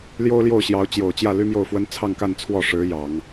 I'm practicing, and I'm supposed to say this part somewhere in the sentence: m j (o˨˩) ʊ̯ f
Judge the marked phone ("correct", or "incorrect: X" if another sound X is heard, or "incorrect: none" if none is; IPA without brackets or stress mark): incorrect: o˥˩